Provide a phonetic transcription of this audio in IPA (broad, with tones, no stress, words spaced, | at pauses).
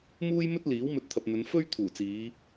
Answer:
muː˥jmɵ˥t̚ liː˨˥wmɵ˧t̚t̪ʰɐ˨p̚n̪ɵ˨˧n fɵ˥ɥt̪ʰuː˨˩t͡siː˨˧